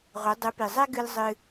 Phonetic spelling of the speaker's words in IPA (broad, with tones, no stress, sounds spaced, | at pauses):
ʁʷ ɘ˩˥ dˤ ɨ˩˥ p i˩ zˤ ɛ˥ ɡ ɨ˧ l zˤ ɨ˧